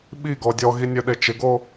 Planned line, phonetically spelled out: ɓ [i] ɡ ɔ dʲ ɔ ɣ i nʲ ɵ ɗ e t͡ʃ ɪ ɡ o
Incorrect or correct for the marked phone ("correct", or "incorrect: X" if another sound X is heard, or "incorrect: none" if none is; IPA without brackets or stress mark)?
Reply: correct